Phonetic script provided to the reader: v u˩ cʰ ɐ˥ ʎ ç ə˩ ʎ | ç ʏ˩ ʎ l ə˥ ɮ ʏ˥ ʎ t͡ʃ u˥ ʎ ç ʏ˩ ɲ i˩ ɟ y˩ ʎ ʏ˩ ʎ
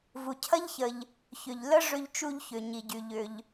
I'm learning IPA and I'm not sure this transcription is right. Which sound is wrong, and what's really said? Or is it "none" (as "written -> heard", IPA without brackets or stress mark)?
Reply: ɮ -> ʐ